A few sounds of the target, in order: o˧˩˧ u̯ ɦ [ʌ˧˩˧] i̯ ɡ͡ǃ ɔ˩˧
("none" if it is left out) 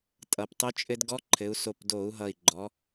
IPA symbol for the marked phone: ʌ˨˩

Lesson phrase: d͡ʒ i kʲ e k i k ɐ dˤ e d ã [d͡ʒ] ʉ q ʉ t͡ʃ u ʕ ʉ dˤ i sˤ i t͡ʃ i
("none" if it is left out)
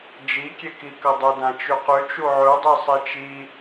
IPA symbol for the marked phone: t͡ʃ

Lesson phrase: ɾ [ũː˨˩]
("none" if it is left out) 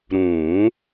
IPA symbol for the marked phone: ũː˨˩˦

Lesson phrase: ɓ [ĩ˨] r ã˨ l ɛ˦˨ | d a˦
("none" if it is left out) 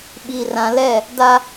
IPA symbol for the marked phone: i˨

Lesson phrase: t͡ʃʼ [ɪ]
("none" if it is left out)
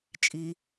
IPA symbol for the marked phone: i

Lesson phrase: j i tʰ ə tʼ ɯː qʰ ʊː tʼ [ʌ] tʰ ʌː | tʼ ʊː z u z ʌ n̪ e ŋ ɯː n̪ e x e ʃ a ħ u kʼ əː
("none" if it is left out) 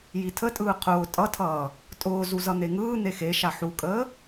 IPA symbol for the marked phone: ʌ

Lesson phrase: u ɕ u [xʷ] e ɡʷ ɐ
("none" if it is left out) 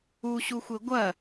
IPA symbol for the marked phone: xʷ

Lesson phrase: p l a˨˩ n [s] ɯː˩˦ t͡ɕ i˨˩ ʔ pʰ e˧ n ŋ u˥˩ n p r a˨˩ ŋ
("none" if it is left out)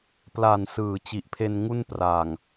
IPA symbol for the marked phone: s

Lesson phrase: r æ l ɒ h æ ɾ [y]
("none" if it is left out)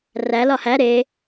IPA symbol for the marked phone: e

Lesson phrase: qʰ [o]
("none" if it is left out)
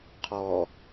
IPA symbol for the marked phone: ɔ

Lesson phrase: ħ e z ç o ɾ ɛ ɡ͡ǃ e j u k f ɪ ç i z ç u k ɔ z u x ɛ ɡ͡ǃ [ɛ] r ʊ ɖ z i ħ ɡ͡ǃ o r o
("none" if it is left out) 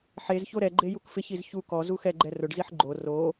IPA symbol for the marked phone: ɛ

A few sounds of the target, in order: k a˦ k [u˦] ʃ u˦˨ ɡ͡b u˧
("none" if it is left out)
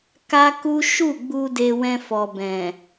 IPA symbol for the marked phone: u˦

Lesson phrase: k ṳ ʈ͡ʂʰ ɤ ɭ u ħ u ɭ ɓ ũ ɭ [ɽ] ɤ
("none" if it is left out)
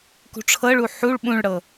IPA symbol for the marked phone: ɽ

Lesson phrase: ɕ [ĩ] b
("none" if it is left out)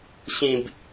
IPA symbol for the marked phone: ĩ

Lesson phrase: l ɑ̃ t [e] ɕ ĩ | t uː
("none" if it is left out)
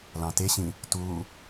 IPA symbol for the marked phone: e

